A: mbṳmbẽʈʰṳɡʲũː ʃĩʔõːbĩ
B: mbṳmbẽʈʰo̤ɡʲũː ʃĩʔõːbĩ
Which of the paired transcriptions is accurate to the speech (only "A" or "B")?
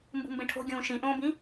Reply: B